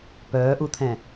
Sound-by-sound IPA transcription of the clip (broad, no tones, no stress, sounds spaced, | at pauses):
p œː ʔ u t̪ʰ ɛ̃